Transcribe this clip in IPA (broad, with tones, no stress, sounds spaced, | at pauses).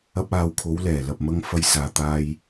ɐ˥ p̚ aː˧ w kʰ o˨˧ w l ɛː˨˩ l ɐ˨ p̚ m ɐ˧ ŋ f ɐ˧ j s aː˨ t̪ aː˧ j